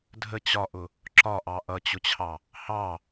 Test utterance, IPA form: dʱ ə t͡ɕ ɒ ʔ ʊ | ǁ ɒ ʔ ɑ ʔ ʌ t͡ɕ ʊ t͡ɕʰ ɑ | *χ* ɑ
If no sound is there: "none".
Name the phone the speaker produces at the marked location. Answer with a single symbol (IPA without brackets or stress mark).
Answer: h